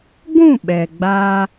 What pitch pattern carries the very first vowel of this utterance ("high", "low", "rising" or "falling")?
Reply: falling